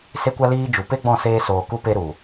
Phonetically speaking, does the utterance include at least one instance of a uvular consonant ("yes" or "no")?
no